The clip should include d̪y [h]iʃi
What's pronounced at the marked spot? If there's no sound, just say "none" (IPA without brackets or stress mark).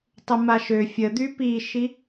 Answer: p